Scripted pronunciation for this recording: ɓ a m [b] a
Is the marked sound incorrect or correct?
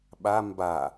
correct